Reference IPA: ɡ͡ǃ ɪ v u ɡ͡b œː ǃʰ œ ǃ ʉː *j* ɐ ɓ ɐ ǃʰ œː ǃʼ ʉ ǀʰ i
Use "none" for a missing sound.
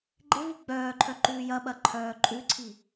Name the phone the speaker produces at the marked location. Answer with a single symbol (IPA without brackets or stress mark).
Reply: j